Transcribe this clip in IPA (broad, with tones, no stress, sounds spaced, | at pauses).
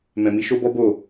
m ɛ̃˨ m i˧ ʃ o˦ b ɔ˦ b o˦˨